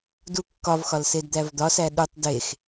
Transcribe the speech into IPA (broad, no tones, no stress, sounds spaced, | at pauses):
d u kː ɒ v x ɒ l s e d d̪ æ v d̪ ɒ s æ ɗ u tˤ d e x